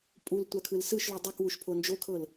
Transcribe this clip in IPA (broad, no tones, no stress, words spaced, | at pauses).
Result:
pʼultʷakʰɯl sɯʃlu dˤɛkwuʃpʰo nd͡ʒokʰɤl